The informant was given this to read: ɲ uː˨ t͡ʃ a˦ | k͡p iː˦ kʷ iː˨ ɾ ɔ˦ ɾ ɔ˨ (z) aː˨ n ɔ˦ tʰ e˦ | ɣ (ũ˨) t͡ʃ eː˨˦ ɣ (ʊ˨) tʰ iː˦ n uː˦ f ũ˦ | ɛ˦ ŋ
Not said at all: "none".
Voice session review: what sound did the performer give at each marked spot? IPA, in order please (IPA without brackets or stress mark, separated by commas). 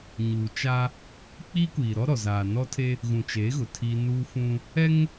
z, ũ˨, ʊ˨